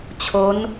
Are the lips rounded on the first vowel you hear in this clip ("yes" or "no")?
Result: yes